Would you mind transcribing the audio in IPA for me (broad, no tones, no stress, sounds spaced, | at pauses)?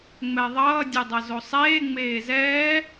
ŋ͡m ɛ ðˤ ʌː dʲ ɯ dˤ ʌ z o sˤ eː ŋ͡m eː z ɛː